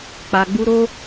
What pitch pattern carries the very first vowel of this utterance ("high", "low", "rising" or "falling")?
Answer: low